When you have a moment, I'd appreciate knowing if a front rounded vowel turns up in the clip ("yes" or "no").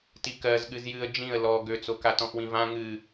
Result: yes